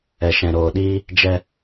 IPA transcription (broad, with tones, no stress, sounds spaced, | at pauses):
ɛ˨ ʃ ɛ̃˨ ɾ oː˨ ɗ iː˦ | d͡ʒ ɛ˦